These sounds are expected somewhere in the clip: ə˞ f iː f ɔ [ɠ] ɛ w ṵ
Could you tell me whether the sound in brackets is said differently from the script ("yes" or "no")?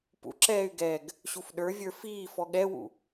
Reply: no